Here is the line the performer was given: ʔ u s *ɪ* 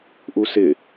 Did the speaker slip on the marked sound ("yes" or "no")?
no